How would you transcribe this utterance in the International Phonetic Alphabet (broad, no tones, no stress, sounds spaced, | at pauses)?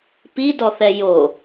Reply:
p i d ɔ θ ɛ j o